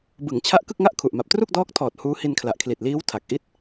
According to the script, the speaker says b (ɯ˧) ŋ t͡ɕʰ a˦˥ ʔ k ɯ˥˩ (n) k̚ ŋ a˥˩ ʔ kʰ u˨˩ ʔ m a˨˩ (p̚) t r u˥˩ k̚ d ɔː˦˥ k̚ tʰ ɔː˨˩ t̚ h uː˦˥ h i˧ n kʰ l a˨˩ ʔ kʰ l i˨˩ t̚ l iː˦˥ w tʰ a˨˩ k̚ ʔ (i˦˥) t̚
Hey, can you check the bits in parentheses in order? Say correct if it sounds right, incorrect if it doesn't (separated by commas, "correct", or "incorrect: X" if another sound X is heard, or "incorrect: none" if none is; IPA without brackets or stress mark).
incorrect: ɯ˩˦, incorrect: none, correct, incorrect: i˥˩